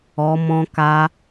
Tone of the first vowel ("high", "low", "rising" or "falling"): low